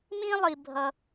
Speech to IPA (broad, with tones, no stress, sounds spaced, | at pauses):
m ĩ˥ lˠ i˨ bʱ ʌ˨